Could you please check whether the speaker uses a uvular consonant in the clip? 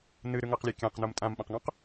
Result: yes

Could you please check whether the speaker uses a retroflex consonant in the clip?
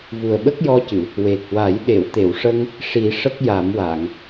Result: yes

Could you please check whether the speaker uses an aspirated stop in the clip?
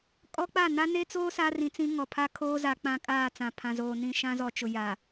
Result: yes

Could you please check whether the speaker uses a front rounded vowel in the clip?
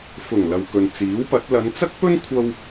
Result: no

